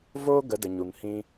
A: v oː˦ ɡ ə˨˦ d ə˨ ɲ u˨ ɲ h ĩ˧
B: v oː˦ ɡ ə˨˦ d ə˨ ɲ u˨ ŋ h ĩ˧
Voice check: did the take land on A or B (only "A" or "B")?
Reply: B